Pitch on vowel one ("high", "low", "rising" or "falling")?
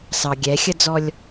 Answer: low